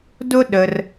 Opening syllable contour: high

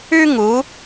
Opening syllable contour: high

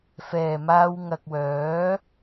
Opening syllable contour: low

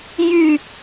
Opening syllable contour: falling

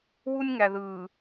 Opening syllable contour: high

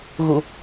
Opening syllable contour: low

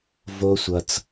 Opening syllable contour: high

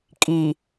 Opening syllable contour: low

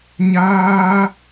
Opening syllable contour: high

